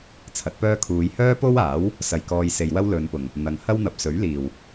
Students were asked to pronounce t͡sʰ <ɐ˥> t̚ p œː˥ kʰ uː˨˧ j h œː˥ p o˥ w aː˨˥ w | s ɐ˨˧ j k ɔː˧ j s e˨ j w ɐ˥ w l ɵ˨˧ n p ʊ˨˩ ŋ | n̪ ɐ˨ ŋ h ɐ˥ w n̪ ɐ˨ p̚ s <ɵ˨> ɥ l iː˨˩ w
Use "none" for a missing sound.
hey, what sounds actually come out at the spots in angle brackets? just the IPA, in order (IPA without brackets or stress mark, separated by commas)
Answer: ɐ˨˥, ɵ˨˥